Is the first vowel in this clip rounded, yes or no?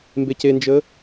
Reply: no